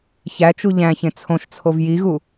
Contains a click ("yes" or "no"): no